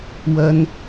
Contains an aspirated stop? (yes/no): no